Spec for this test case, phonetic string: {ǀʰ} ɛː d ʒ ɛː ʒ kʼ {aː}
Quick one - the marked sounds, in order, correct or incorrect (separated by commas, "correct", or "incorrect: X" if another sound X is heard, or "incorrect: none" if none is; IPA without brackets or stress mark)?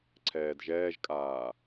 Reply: correct, correct